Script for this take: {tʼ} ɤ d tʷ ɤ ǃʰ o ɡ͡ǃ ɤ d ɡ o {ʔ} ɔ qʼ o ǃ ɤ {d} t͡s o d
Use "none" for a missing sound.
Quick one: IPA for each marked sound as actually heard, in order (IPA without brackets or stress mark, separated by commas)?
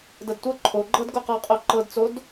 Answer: d, q, d